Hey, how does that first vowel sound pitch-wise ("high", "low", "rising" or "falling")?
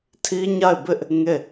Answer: high